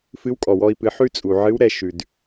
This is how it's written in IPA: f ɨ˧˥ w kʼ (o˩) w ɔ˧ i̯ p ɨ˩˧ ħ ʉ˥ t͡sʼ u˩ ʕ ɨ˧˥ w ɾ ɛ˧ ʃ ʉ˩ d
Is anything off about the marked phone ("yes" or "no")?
yes